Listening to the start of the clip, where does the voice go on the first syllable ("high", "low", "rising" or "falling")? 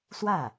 falling